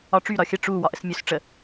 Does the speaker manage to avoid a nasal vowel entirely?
yes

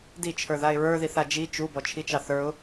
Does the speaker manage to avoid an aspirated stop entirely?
no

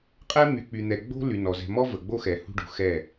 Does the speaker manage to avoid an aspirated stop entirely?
yes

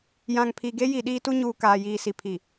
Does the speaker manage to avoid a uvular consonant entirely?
yes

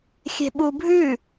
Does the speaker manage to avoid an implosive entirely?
no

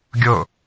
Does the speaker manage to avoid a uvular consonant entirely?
yes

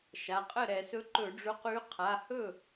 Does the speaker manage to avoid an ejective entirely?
no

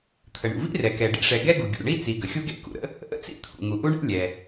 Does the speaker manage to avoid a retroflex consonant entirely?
no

